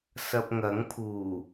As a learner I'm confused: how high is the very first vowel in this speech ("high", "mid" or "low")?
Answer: low